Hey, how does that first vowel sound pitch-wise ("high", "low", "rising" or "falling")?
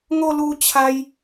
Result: high